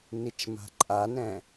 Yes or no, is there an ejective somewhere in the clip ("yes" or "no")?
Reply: yes